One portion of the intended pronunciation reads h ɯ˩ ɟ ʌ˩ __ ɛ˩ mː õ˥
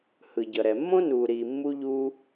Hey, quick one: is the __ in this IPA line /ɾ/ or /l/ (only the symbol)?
ɾ